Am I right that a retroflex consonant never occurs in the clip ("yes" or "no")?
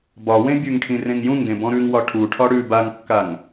no